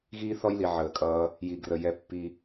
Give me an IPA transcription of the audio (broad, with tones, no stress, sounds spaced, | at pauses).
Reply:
ɣ iː˦ θ ɔ˦ j l i˨ ʕ əː˨ kʼ ʌː˧ | j i˨ ɡ r ə˨ j ɛ˧ pː i˧